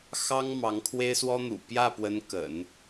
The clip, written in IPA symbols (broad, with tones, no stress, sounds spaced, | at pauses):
x ɑ˥ ŋ m ɑ˧˥ ŋ kʰ w e˥ ɪ̯ s w ɔ˥ n̪ ṵ˨˩ p j ä˥˩ p w ə˧˥ n k ə̰˨˩˦ n